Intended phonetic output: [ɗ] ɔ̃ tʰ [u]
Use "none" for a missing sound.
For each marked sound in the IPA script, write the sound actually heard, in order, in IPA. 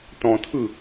t, ɯ

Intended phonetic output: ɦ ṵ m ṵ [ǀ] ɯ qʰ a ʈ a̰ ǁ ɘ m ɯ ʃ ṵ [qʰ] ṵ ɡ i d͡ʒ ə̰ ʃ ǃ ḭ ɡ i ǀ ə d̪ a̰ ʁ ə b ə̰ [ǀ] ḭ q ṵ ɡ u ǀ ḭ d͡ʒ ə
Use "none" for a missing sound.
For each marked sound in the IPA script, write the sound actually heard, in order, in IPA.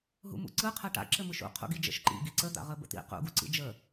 ǀ, qʰ, t̪

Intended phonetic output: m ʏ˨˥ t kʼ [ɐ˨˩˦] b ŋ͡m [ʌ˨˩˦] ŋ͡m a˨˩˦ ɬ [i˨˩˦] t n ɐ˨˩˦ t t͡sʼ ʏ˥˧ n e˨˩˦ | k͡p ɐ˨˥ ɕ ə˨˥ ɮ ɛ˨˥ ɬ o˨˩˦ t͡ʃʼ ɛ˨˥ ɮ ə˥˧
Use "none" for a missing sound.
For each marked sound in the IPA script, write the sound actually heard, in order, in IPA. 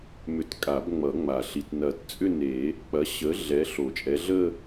a˨˩˦, ʌ˨˩˦, i˨˩˦

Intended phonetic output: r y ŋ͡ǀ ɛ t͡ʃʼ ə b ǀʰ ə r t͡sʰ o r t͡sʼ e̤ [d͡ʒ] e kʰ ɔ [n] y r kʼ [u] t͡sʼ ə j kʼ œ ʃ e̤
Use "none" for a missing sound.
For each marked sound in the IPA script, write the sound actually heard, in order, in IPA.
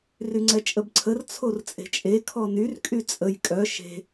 t͡ʃʼ, n, y

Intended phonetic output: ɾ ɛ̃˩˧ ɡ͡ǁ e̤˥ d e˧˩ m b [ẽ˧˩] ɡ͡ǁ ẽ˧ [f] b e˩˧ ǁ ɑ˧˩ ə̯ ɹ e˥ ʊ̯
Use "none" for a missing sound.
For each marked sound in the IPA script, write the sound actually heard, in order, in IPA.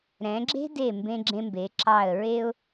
ẽ˧, m

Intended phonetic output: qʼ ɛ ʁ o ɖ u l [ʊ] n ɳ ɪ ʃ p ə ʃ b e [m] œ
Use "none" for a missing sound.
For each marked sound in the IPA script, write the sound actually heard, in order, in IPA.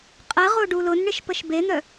ʊ, n̪

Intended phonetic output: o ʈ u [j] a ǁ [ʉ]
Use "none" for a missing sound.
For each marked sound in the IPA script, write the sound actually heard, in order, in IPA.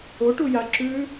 j, ʉ

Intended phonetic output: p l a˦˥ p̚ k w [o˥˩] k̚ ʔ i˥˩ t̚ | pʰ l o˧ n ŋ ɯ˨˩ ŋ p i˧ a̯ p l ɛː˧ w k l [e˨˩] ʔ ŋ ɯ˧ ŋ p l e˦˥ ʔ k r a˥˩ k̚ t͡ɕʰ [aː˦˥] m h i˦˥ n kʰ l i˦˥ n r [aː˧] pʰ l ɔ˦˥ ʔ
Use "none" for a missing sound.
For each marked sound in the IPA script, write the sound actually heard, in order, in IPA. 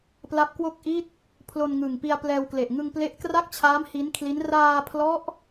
o˥˩, e˨˩, aː˦˥, aː˧

